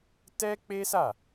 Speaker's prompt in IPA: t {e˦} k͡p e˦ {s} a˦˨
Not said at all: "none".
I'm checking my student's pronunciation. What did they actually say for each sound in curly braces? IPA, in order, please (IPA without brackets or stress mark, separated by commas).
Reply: ɛ˦, s